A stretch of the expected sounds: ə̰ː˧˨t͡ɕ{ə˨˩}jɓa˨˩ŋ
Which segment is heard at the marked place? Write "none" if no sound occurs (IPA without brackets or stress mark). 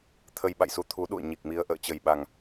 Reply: ə˨˩